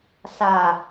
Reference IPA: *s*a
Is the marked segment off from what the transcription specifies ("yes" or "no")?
no